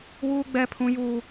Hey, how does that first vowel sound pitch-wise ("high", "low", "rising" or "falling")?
high